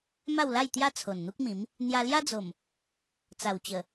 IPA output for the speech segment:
m a˥˧ w l a˥˧ j t̪ j a˦ t͡sʰ o˨˩ n n̪ u˦ k̚ m ĩ˨˦ m | n̪ j a˧ l j a˦ d͡z o˨˩ m | t͡s a˨˩ w t͡ɕ ə˨˩

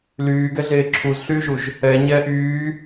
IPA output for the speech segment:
l yː ɡ ɛ ɮ eː ǁʰ u z ɬ yː ʒ u ʒ | ɛ ɲ ɛː ʔ yː

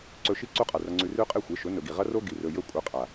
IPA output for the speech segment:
ǀ ɵ˧ ʃ i˦ ǀ u˦ qʼ a˨ r ɐ˧ ŋ͡ǀ ʉ˧ r ʉ˦ qʼ e˦˨ xʷ e˨˦ ʃ ɵ˨˦ n ɵ˨ ɡ i˨ ʁ ɐ˦ r o˦ ɡ i˨ r ɵ˨ j ɵ˧ kʷʼ ɐ˧ qʼ a˨

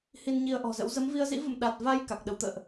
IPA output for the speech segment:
h i˧ n ɲ i˧ ə̯ ʔ ɔ̤˨˩ z ə̰˧˥ w z ə˨˦ m v i˧ ə̯ z ḭ˧˥ v ə̰˧˨ m ɗ a˨˩ t̚ v a˧ j k a˨˩ k̚ ɗ ə˨˦ w t̪ ə̰ː˧˨ ʔ

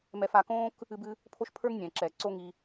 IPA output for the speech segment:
m ɛ˧ f a˧ k õː˦ k | ɨ˧ b ɨ˧ | pʰ o˦ ʃ pʰ ə˞˦ ŋ nʲ ɛ̃ː˨ ǁ ɛː˨ ǀ o˦ ŋ i˧

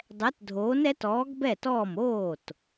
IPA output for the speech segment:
dˤ ɛ˨˥ t dʱ oː˨˥ n ɛ˨˥ t ɔː˨˥ ɡ b ɛ˥˩ t ɔː˥˩ m oː˥˩ t

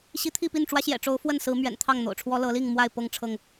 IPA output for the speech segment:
ɕ i˨˦ t̪ʰ i˥˨ p i˥˨ n ʈ͡ʂ w ä˦ ɕ j ɛ̰˨˩ ʈ͡ʂ o˨˦ ʊ̯ f w ə˥˨ n s ɹ̩˨˦ m ɥ ɛ̰˨˩ n t̪ʰ ɑ˥˨ ŋ n̪ o̰˨˩ ʊ̯ ʈ͡ʂʰ w ɔ˦ l ɤ˨˦ l i˥˨ ŋ m w a˥˨ ɪ̯ p ɤ˥˨ ŋ ʈ͡ʂʰ ɤ˥˨ ŋ

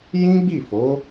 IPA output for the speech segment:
j ĩ˦ ɡ͡b i˦˨ f o˨˦

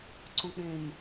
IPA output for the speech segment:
ǀ õ k͡p ẽ m

